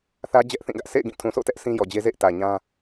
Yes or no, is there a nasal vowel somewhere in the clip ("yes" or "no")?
yes